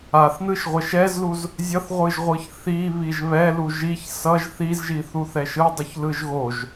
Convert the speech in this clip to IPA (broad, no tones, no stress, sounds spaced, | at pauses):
a θ n ɯ ʃ ʁʷ ɛ ʃ ɛ z l u z | zʲ ʌ θ ʁʷ ɯ ʒ ʁʷ ɯ ç θ i β i ʒ β ɛ l u ʒ i ç s ʌ ʒ θ i z ʒ i θ u θ ɛ ʃ ɯ dˤ u ç l ɯ ʒ ɣ o ʒ